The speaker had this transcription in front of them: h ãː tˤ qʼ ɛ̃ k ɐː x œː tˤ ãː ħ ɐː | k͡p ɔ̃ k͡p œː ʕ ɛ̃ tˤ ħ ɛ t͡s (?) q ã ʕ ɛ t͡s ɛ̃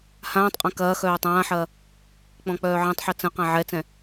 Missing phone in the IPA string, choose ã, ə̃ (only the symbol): ə̃